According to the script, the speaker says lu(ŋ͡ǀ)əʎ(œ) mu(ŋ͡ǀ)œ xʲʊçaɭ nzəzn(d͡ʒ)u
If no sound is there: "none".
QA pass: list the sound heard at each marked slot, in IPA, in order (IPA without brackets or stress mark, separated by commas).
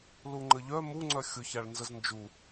ŋ͡ǃ, œ, ŋ͡ǀ, d͡ʒ